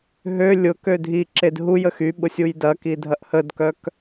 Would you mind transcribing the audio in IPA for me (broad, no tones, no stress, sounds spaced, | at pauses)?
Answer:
ɦ ø lʲ ʊ k ø dʱ i ǁ e d ɦ u j ə x y ɓ ʊ sʲ u j d ɐ k i dʱ ɐ ʔ h ə d k œ k